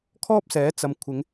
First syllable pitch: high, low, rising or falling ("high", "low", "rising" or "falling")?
high